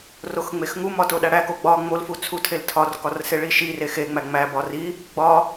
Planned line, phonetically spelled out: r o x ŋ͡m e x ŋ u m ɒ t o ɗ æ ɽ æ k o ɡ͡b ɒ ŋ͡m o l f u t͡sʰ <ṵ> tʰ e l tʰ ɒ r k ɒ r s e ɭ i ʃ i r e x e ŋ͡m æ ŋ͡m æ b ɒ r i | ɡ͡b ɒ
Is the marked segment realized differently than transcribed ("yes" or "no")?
yes